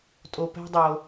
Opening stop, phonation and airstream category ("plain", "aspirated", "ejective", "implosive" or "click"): ejective